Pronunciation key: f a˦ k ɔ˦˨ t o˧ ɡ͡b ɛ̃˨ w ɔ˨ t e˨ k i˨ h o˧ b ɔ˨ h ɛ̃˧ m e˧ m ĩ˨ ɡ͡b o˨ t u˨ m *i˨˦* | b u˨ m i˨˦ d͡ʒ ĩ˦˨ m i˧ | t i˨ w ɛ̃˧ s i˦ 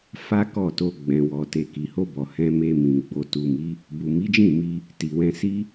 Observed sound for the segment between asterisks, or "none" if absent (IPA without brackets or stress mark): i˨˦